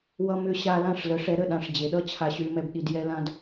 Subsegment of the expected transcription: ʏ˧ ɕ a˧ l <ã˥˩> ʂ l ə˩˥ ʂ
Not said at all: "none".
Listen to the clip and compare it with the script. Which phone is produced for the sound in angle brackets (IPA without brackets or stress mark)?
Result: ã˥˩